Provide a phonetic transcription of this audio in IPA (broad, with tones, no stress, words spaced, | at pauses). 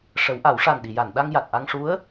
ʂə˨˩˦wʔa˨˩˦wʂa˨˩n ɗi˨˩˨ja˨˩˨n ɗa˧ŋ ja˨˩t̚ʔa˧ŋ ʂu˧˥ə̯